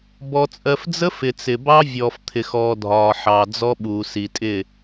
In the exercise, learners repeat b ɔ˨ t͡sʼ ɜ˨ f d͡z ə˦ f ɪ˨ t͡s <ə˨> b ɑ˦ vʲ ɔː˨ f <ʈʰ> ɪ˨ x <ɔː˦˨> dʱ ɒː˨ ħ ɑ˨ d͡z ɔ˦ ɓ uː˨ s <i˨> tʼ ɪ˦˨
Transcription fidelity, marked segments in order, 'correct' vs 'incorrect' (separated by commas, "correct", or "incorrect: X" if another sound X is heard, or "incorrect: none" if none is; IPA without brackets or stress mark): incorrect: ɪ˨, incorrect: t̪ʰ, incorrect: ɔː˨, correct